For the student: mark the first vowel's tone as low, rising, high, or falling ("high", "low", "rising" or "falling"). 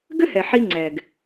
high